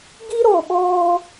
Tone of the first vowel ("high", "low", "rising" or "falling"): high